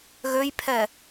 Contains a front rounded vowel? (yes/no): yes